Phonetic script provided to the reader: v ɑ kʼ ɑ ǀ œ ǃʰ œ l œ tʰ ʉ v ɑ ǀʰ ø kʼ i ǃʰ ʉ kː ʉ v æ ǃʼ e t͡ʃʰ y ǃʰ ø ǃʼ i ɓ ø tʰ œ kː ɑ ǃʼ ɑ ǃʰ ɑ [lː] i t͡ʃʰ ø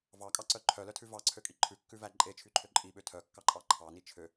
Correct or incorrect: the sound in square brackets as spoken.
incorrect: n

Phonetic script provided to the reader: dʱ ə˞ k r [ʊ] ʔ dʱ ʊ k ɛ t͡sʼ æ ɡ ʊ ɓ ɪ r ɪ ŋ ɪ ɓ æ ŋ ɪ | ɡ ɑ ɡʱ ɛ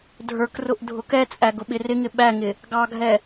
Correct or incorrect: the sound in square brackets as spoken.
correct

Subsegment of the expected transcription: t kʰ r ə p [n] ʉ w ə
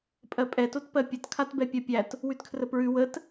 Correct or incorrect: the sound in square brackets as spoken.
incorrect: ɹ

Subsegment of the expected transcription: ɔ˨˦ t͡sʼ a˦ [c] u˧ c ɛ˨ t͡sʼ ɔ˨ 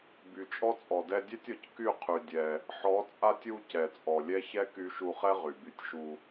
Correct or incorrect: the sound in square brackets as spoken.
incorrect: tʲ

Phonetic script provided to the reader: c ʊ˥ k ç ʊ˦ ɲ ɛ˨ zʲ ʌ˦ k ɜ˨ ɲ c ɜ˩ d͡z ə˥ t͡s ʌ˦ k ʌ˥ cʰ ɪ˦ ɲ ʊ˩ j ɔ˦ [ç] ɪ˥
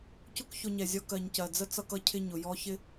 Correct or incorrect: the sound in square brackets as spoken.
correct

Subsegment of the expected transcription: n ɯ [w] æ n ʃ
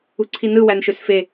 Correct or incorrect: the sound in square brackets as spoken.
correct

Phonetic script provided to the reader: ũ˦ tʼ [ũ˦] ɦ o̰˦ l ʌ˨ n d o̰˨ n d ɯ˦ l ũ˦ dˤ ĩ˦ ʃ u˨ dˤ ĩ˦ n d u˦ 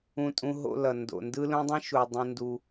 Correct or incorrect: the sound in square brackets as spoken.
correct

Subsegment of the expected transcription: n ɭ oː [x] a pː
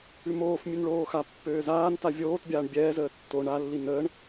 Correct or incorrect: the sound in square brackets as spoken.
correct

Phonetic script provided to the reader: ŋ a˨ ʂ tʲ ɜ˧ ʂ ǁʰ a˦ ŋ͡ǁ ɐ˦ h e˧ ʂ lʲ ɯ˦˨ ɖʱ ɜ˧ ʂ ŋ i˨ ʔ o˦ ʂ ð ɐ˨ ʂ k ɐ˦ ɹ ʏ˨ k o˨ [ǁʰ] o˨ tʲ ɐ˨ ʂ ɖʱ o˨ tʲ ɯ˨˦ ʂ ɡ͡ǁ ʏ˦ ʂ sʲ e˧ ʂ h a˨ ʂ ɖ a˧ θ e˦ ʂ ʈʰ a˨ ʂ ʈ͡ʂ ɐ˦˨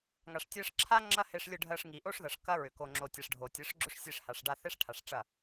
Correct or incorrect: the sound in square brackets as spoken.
incorrect: ŋ͡ǁ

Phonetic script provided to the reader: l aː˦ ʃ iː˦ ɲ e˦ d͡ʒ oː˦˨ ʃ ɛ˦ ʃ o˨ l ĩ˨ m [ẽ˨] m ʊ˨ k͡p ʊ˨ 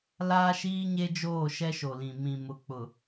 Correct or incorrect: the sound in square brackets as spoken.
incorrect: ĩ˨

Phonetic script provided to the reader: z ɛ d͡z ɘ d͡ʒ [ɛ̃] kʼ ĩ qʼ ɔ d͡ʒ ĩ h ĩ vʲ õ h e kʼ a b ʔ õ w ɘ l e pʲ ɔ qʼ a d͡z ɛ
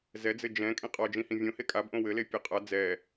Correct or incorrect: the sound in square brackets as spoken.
correct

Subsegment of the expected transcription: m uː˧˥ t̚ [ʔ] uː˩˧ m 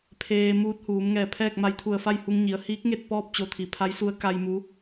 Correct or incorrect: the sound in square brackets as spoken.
incorrect: h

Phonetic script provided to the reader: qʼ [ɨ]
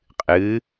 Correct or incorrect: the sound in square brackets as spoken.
correct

